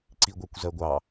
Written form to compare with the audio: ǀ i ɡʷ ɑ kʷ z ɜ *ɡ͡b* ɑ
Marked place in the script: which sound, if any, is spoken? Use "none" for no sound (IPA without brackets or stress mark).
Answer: ɡʷ